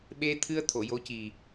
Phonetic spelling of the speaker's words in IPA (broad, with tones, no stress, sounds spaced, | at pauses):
ɓ e˧ t̪ʰ ɨ˧ ə̯ t̪ʰ o˨˩˨ j o˧˥ c i˨˩